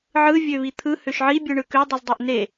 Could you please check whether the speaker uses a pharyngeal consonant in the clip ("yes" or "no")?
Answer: yes